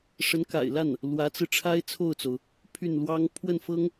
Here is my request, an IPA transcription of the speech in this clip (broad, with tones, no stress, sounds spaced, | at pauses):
ʂ ə˧˥ n k a̰˨˩ ɪ̯ l a˥˩ n | l w ä˧˥ t͡s ɹ̩˧ ʈ͡ʂʰ a˥ ɪ̯ t͡sʰ o˥˩ ʊ̯ t͡s o˩ ʊ̯ | pʰ y˥˩ n l w ɑ˥ ŋ pʰ w ə˥˩ n f ɤ˥ ŋ